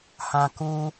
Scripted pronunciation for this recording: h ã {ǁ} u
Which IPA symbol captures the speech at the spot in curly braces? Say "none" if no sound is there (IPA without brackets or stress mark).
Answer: k